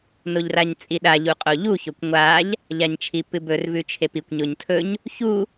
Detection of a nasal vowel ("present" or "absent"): absent